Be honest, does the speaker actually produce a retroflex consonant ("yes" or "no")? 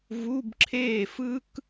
no